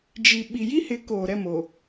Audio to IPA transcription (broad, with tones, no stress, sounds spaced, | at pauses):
d͡ʒ i˨ ɓ i˨ j i˦ h ɪ˨˦ k oː˨ ɾ ɛ˦˨ m o˨